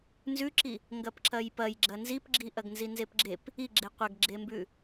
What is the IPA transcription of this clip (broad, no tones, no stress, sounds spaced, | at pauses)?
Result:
n z ʉ ǁ i | ŋ ɡ ɐ p ǁ ɐ j p ɐ j ɡ͡ǁ ɐ n z i p ɡ͡ǁ i ʔ ɐ ɡ n z i n z e p ɡ͡ǁ e p | i ɡ͡ǁ e qʷ ɐ ɡ ɡ͡ǁ e m b ʉ